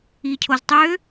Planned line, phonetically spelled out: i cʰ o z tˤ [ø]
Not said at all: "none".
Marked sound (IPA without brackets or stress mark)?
ø